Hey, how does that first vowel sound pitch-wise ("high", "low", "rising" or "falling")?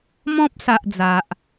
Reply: high